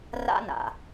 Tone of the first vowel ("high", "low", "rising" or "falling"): high